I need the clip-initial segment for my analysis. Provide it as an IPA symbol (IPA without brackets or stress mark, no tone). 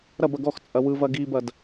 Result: ɾ